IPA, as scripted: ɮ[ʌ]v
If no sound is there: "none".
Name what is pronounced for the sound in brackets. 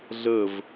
ə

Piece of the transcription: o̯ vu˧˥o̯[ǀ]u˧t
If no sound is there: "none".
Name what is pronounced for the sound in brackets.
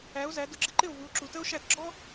ǁ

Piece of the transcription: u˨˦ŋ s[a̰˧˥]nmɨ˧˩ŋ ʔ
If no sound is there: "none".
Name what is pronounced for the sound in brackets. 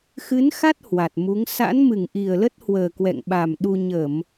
a̰˧˥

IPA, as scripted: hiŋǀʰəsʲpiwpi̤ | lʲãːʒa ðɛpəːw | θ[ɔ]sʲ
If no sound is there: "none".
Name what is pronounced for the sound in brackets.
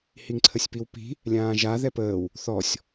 ɔ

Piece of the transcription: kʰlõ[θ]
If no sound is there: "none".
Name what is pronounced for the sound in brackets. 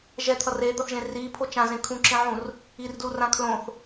θ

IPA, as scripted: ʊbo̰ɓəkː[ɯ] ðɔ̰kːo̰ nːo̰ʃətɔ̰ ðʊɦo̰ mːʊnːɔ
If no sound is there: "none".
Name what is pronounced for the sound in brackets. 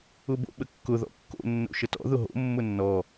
ʊ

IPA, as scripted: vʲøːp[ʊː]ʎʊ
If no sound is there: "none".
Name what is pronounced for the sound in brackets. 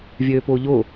ʊː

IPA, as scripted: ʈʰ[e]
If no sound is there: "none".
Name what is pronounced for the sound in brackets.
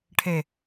e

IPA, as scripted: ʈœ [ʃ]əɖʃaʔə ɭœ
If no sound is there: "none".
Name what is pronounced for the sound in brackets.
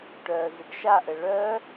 z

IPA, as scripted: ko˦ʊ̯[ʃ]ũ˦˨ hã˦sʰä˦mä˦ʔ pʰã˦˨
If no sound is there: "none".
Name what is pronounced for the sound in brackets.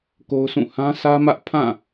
s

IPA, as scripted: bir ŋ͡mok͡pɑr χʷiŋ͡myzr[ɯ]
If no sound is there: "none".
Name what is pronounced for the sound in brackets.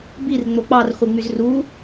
u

